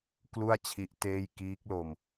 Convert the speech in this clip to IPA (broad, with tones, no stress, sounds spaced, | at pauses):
k l u˥˩ a̯ t͡ɕʰ i˦˥ ʔ t eː˥˩ j k iː˦˥ k̚ l o˧ m